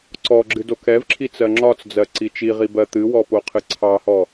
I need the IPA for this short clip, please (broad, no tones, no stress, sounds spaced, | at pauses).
ǀ ɔ ɡ͡ǁ ɨ d o k ɛ v ǁʰ i t͡s ɜ ŋ͡ǁ ɒ t͡s d͡z ɜ ǀ i t͡ʃ i ʁ i b ɜ t̪ ɨ w ɔ p o qʰ ɨ ǀʰ ɑ h ɔ